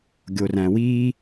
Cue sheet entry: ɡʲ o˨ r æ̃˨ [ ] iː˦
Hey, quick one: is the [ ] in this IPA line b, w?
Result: w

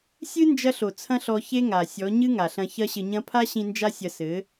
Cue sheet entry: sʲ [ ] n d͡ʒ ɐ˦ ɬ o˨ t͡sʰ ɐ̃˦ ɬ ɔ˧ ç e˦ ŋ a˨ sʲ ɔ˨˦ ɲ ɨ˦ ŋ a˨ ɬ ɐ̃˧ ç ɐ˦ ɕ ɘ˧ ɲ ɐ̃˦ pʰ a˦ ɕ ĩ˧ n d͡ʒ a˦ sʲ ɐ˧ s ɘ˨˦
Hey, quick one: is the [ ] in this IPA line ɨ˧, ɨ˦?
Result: ɨ˦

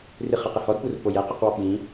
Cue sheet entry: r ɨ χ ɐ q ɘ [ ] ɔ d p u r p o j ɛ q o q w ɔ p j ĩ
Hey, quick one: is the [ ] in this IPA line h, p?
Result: h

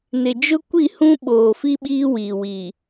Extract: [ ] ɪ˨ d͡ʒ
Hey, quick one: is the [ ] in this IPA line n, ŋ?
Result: n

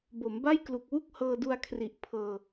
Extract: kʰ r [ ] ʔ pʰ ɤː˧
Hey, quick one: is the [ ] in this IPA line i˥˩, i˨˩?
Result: i˨˩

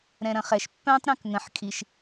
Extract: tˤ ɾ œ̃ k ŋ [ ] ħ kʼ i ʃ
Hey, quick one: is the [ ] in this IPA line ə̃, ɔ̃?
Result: ə̃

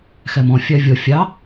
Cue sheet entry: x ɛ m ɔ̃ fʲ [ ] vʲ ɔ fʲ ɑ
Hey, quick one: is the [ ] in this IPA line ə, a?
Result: a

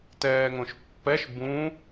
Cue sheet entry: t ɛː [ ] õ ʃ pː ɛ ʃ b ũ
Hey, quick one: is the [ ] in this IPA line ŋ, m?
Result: ŋ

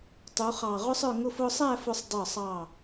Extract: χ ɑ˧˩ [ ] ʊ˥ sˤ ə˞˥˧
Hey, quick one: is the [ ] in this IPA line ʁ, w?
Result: ʁ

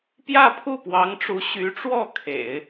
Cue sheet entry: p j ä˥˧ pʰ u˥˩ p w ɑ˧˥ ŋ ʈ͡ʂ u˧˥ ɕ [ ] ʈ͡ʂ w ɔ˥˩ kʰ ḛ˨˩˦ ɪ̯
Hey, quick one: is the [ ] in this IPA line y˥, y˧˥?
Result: y˧˥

